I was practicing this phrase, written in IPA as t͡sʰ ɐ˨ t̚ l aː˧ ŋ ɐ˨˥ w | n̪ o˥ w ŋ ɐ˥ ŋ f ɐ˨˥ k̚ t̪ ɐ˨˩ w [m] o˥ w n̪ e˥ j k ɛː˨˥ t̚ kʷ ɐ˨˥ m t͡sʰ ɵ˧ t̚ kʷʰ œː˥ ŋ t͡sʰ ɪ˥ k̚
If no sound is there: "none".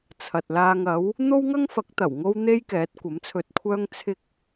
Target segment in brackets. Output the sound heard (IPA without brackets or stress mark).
ŋ